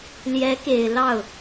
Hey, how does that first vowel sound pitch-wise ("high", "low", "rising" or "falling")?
rising